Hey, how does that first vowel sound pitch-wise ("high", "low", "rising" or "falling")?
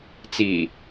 low